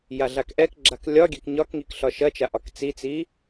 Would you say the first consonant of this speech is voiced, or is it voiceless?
voiced